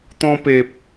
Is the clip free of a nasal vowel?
no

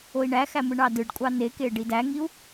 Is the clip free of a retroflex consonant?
no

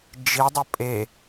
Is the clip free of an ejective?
no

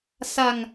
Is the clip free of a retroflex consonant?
yes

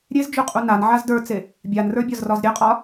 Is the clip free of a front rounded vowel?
yes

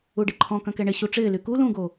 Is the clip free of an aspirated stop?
no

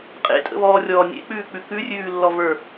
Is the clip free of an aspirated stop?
yes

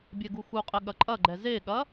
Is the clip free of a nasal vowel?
yes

